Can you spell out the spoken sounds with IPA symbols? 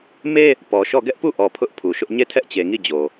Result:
me˦ | pɔ˨ʃɔ˦˨ ɡɛ˦ʔpu˦˨ʔɔ˨ pʰʊ˦ʔpʰu˨ʃʊ˦ʔ ɲe˦˨tʰɛ˦ʔt͡ɕe˨ŋi˦˨ d͡ʑo˨

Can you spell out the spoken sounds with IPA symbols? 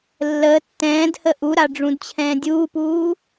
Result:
lːəː tːɛ̃ːdhə ʔuɾaɖ͡ʐũdt͡ɕʰɛ̃ː dʲuːpuː

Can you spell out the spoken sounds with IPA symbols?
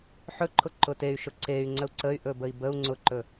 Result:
ħɵǃʰʊ ǃʊtey̯ ʃʊǀey̯ ŋ͡ǀəu̯ǀəy̯ ʔɵbəi̯bəu̯ ŋ͡ǀʊǃɵ

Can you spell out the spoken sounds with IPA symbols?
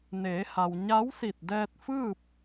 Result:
neː˩˧ha˩w ɲa˧˥wsi˧˩t̚dɛː˧t̚fɯː˥˨p̚

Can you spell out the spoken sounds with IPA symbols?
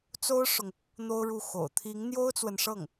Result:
t͡so˥ʊ̯ʂʊ˨ŋ | n̪o˥ʊ̯ɻu˥˩xo̰˨˩ʊ̯ t̪ʰi˧˥ŋn̪jo˥ʊ̯t͡swə˨nʂɤ˥˩ŋ

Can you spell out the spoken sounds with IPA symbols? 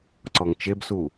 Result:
ǀɔŋt͡ʃebsu

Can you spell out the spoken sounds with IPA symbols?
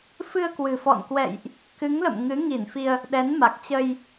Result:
fɨ˧ə̯kwɨ̤˨˩ fɔ̰˧˨nkwɛ̰˧˨jʔ | kɨ˨˦ŋlə̰˧˨m ŋɨ˨˦ŋi˧˩nfi˧ə̯ | ɗɛ˨˦nma˨˩k̚t͡ɕə˧j

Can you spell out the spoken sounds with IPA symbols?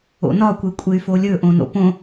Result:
o̰nɒ kʷekʷʼey̯folʲɵ ʔõno̰põ

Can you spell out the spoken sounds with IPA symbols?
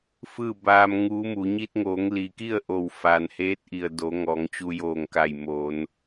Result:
fɯː˥˨baː˧mŋuː˧˥mu˩˧ ɲi˧t̚ŋoː˩˧ŋli˩ki˥˨ə̯ ʔo˧˩w fa˩nheː˧˥t̚ʔi˩ə̯ do˩˧ ŋɔː˩˧ŋt͡ɕu˧joː˧˩ŋka˧˩j mo˩˧n

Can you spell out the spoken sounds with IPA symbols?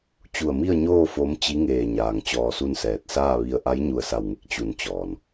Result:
t͡ɕu˧˩ə̯mi˥˨ə̯ɲoː˥˨ fo˧˥mt͡ɕi˧˥ ŋeː˧˩ɲaː˩ŋ t͡ɕɔː˧su˥˨nsɛː˧˩t̚ saː˥˨ʋi˧ə̯ ʔa˧˥jɲu˧˩ə̯sa˧˩wŋe˧˥k̚ t͡ɕu˧˩nt͡ɕɔː˩n

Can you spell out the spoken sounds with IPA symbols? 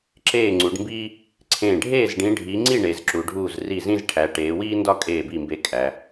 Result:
ǁeː˥˩ŋ͡ǀu˨˦ɖmbiː˥ | ǀʰẽː˥˩ ɖʱeː˥˩zɖĩ˨˦ ɖʱi˨˦ŋ͡ǀi˥˩ ɳe˨˦zǁu˨˦ ɖʱuː˥˩zri˥˩zĩ˥zʈʰæ˨˦ ʈeː˨˦wiː˥ ndɒ˥ kʼeː˥˩bi˥˩mbe˥˩ kʼæ˨˦

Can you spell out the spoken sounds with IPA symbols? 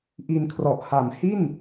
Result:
ʔi˧nkʰrɔ˨˩ʔ ha˩˦mhi˥˩n

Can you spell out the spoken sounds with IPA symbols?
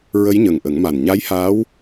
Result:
ɹə˧˥jɲə˨˩ŋʔə˨˩˦ŋma˨˩n ɲa˧˥jhaː˧˥w

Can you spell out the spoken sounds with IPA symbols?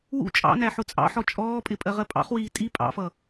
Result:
wṵ t͡ʃʼɑ̰næ ħʊt͡sʼɑ̰ħɔ t͡ʃʼɔːpʼɪ pʼɜʁɜpʼɑ̰χwiː tʼi pʼɑ̰fʌ

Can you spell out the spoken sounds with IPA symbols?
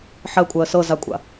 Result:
ħɜkʷʼɜ sɤzakʷʼa̰

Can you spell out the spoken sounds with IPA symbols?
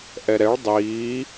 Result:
ʔɛɾɛɭ dˤiː

